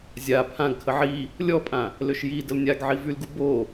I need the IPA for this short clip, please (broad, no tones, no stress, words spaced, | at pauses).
zʲa pʰãɡ kʰəʕi | lʲɔpʼã | løʃjidəl nʲaɡ ʕivylɡu bo